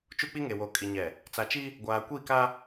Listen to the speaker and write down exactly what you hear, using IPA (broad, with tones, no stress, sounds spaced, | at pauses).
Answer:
t͡ʃ u˦ k͡p i˦ ŋ e˨ w o˨ kʼ i˨ ɲ ɛ˨ | t͡s a˨ t͡ʃ i˦ | ɡʷ aː˨ kʷ i˦˨ k a˦